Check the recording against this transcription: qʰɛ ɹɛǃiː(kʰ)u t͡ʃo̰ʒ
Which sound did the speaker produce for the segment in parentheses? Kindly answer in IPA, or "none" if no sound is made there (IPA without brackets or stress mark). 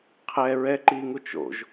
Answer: ŋ